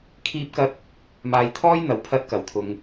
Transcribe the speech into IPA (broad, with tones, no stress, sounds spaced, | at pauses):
kʰ iː˥ p̚ k ɐ˥ t̚ | m aː˧ j t̪ʰ ɔː˥ j n̪ ɐ˨˧ w pʰ ɐ˥ t̚ k ɐ˨˧ w t̪ʰ ʊ˧ ŋ